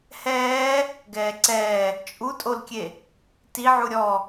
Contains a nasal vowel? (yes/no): no